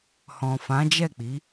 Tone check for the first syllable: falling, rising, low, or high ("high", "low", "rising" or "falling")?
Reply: low